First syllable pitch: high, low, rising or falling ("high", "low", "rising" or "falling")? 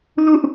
high